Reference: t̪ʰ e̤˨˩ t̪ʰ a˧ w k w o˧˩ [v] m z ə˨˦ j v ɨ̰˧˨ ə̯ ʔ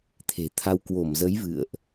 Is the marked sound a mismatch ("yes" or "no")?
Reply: yes